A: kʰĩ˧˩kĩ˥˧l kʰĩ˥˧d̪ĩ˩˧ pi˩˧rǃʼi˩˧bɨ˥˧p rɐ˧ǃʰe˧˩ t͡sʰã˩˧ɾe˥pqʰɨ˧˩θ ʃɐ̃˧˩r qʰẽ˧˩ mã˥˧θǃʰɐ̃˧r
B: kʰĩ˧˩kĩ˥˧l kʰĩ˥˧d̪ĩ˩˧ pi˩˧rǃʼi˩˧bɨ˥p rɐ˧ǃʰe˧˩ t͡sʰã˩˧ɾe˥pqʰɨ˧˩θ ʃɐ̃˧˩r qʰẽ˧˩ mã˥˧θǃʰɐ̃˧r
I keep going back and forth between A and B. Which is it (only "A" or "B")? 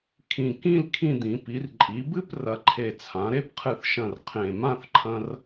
A